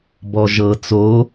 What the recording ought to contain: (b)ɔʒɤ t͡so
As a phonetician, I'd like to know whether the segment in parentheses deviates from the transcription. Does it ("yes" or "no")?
no